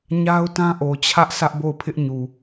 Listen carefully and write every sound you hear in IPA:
ɲ a˦ ʊ̯ t ã˦ ʔ o˨ t͡ɕʰ ä˦ ʔ s ä˦ ʔ b o˦˨ ʊ̯ pʰ ɪ˦ ʔ ɲ u˨

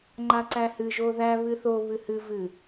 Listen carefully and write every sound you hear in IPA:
ŋ͡ǃ a ǀ æ h ɨ ʒ o ð æ β ɨ θ o β ɨ h ɨ v ɨ

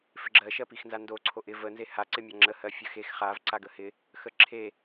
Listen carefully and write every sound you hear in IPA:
f ɪ ɡ͡ǁ ɜ ʃ ɜ p i x n z a n d o ǀʰ o ʔ ɪ v ə n z e h a ǀ ɪ mʲ a ŋ͡ǁ ə h ɜ fʲ ə x e x χ a v ǀ a ɡ ə h ɪ | x ə ǁʰ e

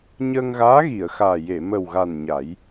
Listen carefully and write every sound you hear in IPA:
ɲ əː˧ ŋ ɣ aː˧˥ ɣ i˨˩˨ ə̯ x aː˨˩ j e˨˩˨ m ə˨˩ w ɣ a˨˩ n ɲ a˨˩˦ j

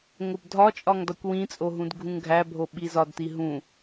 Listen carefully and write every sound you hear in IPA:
ŋ o b dʱ ɒ t͡ʃʼ ɒ ŋ d ɒ kʷ w ĩ t͡sʼ o ɦ ũ d ɡʱ ũ ŋ ɡʱ æ bʱ o ɓ i z ɒ d t i ɦ ũ

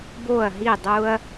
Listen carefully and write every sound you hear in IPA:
b o˧˩ ɐ̯ ɦ i˧˩ dˤ u˧ ɐ̯

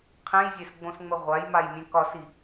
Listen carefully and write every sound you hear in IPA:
qʰ ẽ j zʲ e s ɡ͡b õ s ŋ͡m ə ʁʷ a j m a j mʲ ẽ k ɒ s i

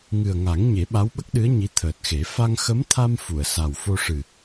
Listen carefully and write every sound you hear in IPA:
ŋ ɨ˨˩ ə̯ ŋ a˨˩˦ ŋ ɲ e˨˩˦ ɓ a˧˥ w ɓ ə˦˥ k̚ ɗ ɨ˧˥ ə̯ ɲ i˧˥ t̪ʰ əː˨˩ t̚ x e˨˩˦ f a˧ ŋ x ə˧˥ m t̪ʰ a˧ m f u˨˩˨ ə̯ s a˨˩ w f o˧ ʂ ɨ˨˩

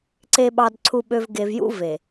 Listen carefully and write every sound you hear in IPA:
ǀ e˨ ɓ ɑ˨ d ǀʰ u˨ ɓ ø˨ v ɡ e˨ v j ṵ˦ v e˨

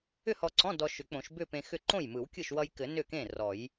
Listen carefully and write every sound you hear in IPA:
ʏ˥˧ h ɔ˧ ǀ ɔ̃˧˥˧ d ɔ˧ ʃ ʏ˨˩˦ k͡p õ˨˩˦ ʃ b ʏ˥˧ p ẽ˧ x ʏ˥˩ ǃ õ˥˩ j m ɯ˨˩˦ w kʲ ɯ˥˩ ʃ w ʌ˧ j k ɘ˨˩˦ n ʏ˥˩ k ẽ˥˩ r ɔ˨˩˦ j

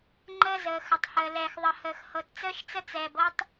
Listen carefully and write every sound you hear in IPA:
ŋ͡ǃ əː˦ z əː˨ x ə˨ tˤ h əː˨ l ɛː˨ x ðˤ ə˨ h əː˨ x h ɤ˨ t t͡s əː˦ ʃ t͡s ə˦ t͡s ɛː˨ b ɤ˦ tˤ

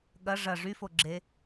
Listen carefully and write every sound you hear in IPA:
ɠ ɐ ʐ ɐ ʐ y f o ɡ͡ǁ e

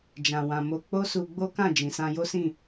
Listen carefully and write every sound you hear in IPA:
d͡ʒ ã˧ w ã˧ m o˦ k͡p o˦ s u˧ ɡ͡b o˦ k ã˦˨ d͡ʒ ĩ˨ s ã˧ j o˦ s ĩ˦˨

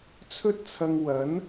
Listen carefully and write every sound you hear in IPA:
t͡sʰ ɵ˥ t̚ t͡sʰ ɐ˧ ŋ w ɐ˨˥ n

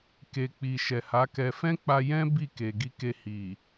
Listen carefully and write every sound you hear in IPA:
k e˨ k͡p i˨ ʃ ɛ˨ h a˨˦ k ɛ˧ f ɛ̃˦ k͡p a˧ j ɛ̃˦ b i˦˨ k e˨ ɡ i˧ k e˧ h i˨

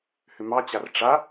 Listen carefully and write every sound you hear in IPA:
h ʏ m ɑ t͡ɕ a r ʈ͡ʂ a

